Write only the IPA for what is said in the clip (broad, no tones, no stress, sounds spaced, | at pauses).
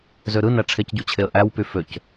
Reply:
z ø ɾ ɯ n æ ʈ͡ʂʰ e c ɟ u t͡ɕʰ e ə̯ ʔ æ w p y f ø c